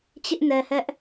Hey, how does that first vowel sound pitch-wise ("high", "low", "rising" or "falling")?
high